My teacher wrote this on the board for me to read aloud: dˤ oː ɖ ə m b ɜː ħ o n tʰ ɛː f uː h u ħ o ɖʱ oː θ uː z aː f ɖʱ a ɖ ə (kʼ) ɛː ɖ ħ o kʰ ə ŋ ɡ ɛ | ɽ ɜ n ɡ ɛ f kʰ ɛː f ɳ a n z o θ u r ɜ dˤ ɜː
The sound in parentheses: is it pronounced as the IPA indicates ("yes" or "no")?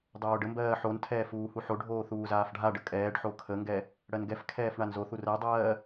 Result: yes